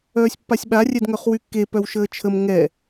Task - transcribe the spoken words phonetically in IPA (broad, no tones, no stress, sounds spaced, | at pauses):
œː sʲ pː a sʲ ɓ a rʲ ɛ d ŋ œ χ w y kː e p œ w ʃ əː t͡ʃʰ ə m ŋ ɛ